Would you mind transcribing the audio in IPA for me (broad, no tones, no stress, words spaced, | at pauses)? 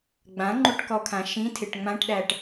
ɡ͡bãŋ͡ǃuʈkɔkʰã ʃĩtʰɪʈ ŋ͡mãʈɗæʈ